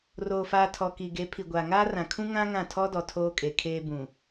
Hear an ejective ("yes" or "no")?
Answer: yes